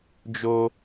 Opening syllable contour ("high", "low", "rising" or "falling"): high